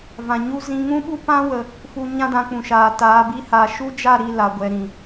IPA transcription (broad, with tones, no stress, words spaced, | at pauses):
vã˨ɲu˦zĩ˦ ŋũ˦ɓu˦pã˦wə˨ | fu˧ ɲã˦dã˧ k͡pũ˨ʃaː˨ taː˨˦bi˦haː˧ ʃu˦d͡ʒa˦˨ɾi˦˨ la˨ɡʷɛ˨ ɾĩ˨